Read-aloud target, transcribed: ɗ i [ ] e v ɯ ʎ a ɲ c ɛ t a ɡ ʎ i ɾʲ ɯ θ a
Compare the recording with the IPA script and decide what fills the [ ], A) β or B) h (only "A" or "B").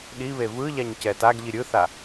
A